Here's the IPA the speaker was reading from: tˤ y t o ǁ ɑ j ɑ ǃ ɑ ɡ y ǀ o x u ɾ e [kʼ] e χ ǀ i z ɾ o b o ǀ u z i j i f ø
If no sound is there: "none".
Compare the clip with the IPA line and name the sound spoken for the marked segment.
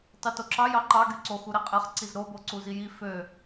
qʼ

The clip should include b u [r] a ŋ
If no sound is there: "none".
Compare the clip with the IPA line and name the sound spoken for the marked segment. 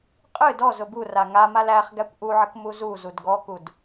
r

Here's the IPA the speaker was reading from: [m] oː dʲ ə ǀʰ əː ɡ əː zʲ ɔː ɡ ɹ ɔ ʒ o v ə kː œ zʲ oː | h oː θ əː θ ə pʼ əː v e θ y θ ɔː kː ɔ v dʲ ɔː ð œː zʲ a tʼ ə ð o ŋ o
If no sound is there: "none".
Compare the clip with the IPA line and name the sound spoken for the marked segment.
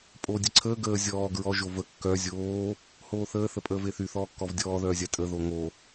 pʼ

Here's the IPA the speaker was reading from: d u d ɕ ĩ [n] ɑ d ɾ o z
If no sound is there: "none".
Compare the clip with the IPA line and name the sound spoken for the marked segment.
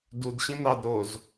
n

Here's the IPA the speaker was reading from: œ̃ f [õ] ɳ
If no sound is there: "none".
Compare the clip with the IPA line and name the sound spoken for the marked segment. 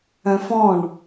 ɔ̃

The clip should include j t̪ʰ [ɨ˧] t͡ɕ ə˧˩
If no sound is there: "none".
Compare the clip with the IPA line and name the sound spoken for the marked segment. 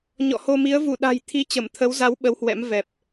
i˧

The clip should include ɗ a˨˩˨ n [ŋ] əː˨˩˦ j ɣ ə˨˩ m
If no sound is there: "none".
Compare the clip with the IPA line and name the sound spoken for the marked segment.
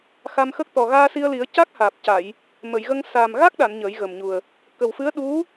ɲ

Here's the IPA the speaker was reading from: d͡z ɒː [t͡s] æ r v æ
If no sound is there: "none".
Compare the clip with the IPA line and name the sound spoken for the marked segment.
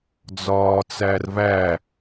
t͡s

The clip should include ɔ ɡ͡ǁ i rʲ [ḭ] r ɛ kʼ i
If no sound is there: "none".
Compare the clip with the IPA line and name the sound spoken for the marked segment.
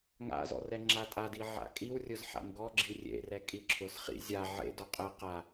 ḛ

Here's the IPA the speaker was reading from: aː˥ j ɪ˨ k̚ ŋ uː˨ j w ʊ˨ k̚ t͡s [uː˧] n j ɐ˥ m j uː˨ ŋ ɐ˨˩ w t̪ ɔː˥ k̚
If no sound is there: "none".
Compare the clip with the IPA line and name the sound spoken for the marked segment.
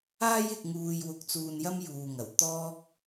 uː˨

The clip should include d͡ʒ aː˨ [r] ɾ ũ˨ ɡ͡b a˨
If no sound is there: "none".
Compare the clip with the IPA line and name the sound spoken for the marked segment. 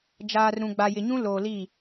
r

